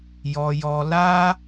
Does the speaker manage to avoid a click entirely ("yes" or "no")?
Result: yes